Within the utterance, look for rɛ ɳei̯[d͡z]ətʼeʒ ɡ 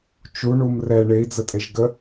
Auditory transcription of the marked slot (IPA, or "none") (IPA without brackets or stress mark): d͡z